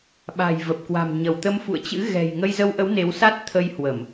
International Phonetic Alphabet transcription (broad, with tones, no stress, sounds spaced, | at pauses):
ɓ a̤˨˩ j v ə˨˩ p̚ k w a̤˨˩ m ɲ ə˧˩ w t̪ ə˧ m f ṵ˧˨ ə̯ t͡ɕ ɨ̰˧˥ ɣ ɛ̤˨˩ j ŋ ə˧ j z ə˧ w ʔ ə˨˦ w n e˨˦ w s a˦˥ t̚ t̪ʰ ə˧ j h w ə˧˩˨ m